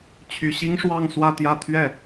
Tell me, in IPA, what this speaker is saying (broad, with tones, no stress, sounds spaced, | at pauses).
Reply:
t͡ɕʰ y˨˩ ɕ i˥ ŋ ʂ w ɑ˥˧ ŋ s w ä˥˧ t̪ j ä˥˧ t̪ʰ ɥ ɛ˥˩